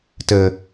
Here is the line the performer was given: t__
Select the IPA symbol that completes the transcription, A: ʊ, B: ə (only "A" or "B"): B